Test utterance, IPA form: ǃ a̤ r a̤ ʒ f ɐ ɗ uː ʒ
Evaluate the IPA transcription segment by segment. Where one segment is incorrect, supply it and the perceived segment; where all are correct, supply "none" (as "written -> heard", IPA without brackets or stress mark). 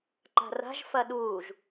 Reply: none